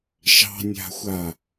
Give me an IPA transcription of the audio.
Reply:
ʃ ɑ̤ nʲ a̤ xʷ a

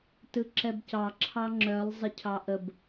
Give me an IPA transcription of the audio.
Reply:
t ɯ ǁ ɛ b c ɑ ǁʰ ɑ ŋ͡ǁ œ lˠ zˤ ɪ cʰ ɑ ʔ ə b

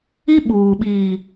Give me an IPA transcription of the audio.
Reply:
i˦ ɓ uː˨ ɓ iː˨

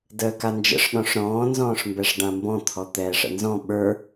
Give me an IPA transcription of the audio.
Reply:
d əː k a n d͡ʒ ə̰ ʂ ɗ ɔ̃ ʂ ɾ ɔ̃ː n z ɔ̃ː ʂ m b ɛ ʂ ɖ ã m b ɔ̃ t̪ʰ ɔ t̪ ɛː ʂ ə̰ n z ɔ̃ ɓ ə˞

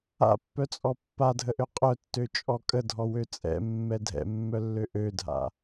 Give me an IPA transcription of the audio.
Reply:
a̰ pː œ t͡sʼ ɔ pː a dʱ ə ʔ ø qʼ œ tː ø t͡ʃʼ ɔ kʼ ə dʱ ɔ w ø t͡sʼ ɛ̰ mː ɛ dʱ ɛ̰ mː œ lː ø ʔ ø dʱ a̰

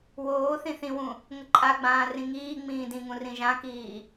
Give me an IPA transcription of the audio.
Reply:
w oː θ ĩ θ ĩ w ũ | ŋ ə ǃʼ a ɡ͡b ãː r ĩ ŋ iː ŋ͡m ĩː d ĩ ŋ ũ r ĩ ʒ ã k iː

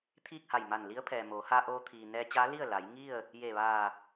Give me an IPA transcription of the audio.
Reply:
t̪ʰ iː˥˨ k̚ h a˧˩ j m a˧˩ n l i˧˥ ə̯ pʰ ɛː˩ m oː˩˧ h a˧ ʔ oː˧ t̪ʰ iː˩ n ɛː˧ t͡ɕ aː˧˥ l i˥˨ ə̯ l a˩˧ j ŋ i˥˨ ə̯ | j e˧˩ ʋ aː˧˩

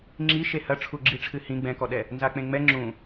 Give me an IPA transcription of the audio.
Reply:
ŋ͡ǁ i ʃ e h ɐ ʈ͡ʂʰ u ɡ͡ǁ i ʈ͡ʂʰ ɨ h ĩ ɡ͡b ɛ̃ k ɔ ɗ ɛ | n z a k͡p ẽ ŋ͡m ɛ ŋ͡ǁ ũ

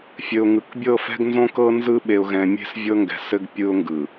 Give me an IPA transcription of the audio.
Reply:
fʲ ɘ˨ ʊ̯ ŋ ɯ˨ k bʲ ɤ˦˨ f ɛ̤˦ ɡ n z õ˦ k ɤ˦ n z ɯ˦ ɓ e˨ ʊ̯ ɣ ɛ̃˨ mʲ e̤˦ s vʲ ɤ˦ ŋ ɡ ɛ̤˨ s ɘ˦ ɡ pʲ ɯ˦ ʊ̯ ŋ ɡ ɯ˨

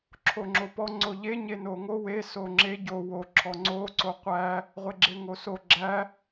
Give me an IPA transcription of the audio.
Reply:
ǁʰ o ŋ͡ǁ o p ɔ ŋ͡ǀ o ʎ e ɲ e n o ŋ o w e s o ŋ͡ǁ e ɟ o w o ǁʰ ɔ ŋ͡ǀ o ǀ o qʷ æ | ʁʷ e ɡ͡ǁ e ŋ o s o ɡ͡ǁ æ

